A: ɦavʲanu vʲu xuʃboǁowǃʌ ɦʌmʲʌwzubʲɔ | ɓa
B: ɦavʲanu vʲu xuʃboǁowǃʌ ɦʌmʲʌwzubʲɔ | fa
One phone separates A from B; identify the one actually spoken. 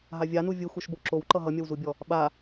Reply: A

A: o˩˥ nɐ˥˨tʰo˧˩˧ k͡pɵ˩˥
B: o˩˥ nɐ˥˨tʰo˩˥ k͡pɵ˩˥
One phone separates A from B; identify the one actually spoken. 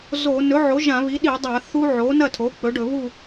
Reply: B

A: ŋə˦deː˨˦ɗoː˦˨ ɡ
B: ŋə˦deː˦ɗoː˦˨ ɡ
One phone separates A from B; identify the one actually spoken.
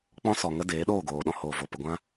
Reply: A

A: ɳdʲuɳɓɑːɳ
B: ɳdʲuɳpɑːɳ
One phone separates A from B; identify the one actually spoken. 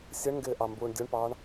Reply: B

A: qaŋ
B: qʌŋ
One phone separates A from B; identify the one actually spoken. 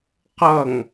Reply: B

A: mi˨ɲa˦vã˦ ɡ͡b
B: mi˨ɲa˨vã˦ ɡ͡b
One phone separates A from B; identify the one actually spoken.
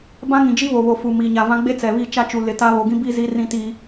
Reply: B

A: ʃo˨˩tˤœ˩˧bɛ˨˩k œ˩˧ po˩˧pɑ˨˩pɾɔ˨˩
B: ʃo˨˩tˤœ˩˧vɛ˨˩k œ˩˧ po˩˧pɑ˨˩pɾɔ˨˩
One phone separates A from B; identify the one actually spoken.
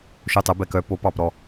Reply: A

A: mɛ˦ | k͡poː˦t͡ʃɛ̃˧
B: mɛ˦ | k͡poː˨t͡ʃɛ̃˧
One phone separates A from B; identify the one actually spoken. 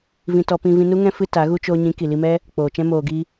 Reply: B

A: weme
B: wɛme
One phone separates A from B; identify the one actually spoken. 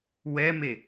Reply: B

